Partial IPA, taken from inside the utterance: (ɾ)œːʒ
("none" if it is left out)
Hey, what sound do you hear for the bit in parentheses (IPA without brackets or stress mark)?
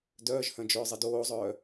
d